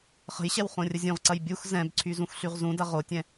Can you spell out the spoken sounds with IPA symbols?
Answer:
χ ə̤ j ɕ ɛ w χ õ rʲ ə zʲ ũ ʁ ǀ ɐ j bʲ u x z ɛ̃ b ǀʰ y z ũ x ɬ y ʁ z ũ d ɐ ʁ o tʲ ɛ̃

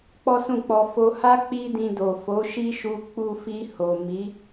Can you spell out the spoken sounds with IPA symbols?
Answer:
k͡p ɔ˦ s ũ˦˨ k͡p ɔ˧ f o˧ h a˦ k͡p i˦ d ĩ˧ d o˨ f o˨˦ ʃ i˦ ʃ u˧ k͡p u˧ f i˧ h o˨ m i˨˦

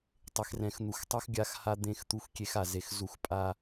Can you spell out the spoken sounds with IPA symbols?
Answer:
tˤ e˨ x r ɛ̃˨ x n̪ u˨ x tˤ u˦ x ɡʲ a˦˨ x h a˦ d̪ ẽ˦˨ x t̪ u˦ x kʲ e˦ x a˨ z e˨ x z u˦˨ x pʼ a˦

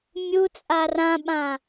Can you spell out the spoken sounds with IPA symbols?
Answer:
mʲ u t͡sʼ a r ã ɓ ã

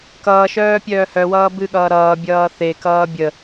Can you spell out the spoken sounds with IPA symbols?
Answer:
k ʌː ʃ œː pʲ œː h œ w ʌː b ɨ ɠ ʌː ɾ ʌː bʲ ʌː θ e k ʌː bʲ ə

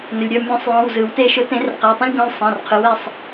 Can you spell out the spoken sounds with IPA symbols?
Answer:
n ɵ˩ lʲ ɾʲ ɔ˩˧˩ mʲ ɔ̃˨˩˦ sˤ j ɔ̃˩˧˩ w z ɯ˩ w t e˧˩ ʃ ʊ˨˩˦ t ẽ˨˩˦ r q æ˩˧˩ tˤ ɛ̃˧ lʲ ɡ ɔ̃˧ lʲ sˤ ɛ̃˩˧˩ r qʰ ɯ˩˥ w ɛ˧ sˤ

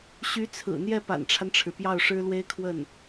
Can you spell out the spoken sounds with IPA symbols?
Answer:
ɕ y˧˥ t͡sʰ ɹ̩˨˩ n̪ j ɛ˥˩ p a̰˨˩ n ʈ͡ʂʰ a˦ n ʈ͡ʂʰ ɻ̩˩ p j ɑ˥˩ ʊ̯ ʂ ɻ̩˥ l w e˥ ɪ̯ kʰ w ə˥˩ n

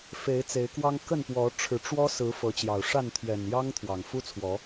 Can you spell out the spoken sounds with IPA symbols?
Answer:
f e˨˦ ɪ̯ t͡s e˨˦ ɪ̯ k w ɑ˦ ŋ k ə˥˨ n p w ɔ˨˦ ʈ͡ʂʰ ɻ̩˨˦ ʈ͡ʂ w ɔ˦ s ɹ̩˨˦ f ɤ˨˦ t͡ɕ j ɑ˨˩ ʊ̯ ʂ a˥˨ n t̪ʰ ɥ ɛ˨˩ n j ɑ˦ ŋ t̪ʰ w ɑ˨˩ ŋ f u˦ t͡sʰ w ɔ˨˦

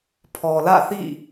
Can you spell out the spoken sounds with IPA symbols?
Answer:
pʰ ɔ˨ l ä̰˦˨ θ ḭ˦˨

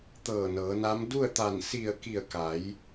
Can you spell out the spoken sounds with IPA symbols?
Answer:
t̪ ɤː˧˩ n ɤː˩˧ n a˧˥ m d u˥˨ ə̯ t̪ a˧˩ n s i˧˩ ə̯ k i˧˩ ə̯ k a˩˧ j

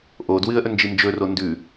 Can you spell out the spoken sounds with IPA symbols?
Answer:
ʔ o d w ɨ ə̯ ʔ ɵ n d͡ʒ i n d͡ʒ ɵ r o n d ʉ

